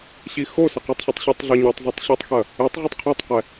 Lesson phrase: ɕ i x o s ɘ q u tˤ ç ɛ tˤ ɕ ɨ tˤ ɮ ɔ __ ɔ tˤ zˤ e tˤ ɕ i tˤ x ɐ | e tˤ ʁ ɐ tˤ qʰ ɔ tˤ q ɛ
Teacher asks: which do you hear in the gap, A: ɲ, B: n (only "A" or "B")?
A